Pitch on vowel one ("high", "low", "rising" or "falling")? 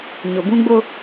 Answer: low